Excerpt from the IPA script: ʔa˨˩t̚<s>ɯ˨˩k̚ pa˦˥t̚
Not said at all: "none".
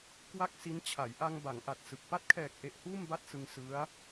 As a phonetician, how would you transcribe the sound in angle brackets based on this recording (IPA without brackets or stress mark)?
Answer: s